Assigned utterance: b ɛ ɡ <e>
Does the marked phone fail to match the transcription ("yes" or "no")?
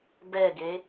no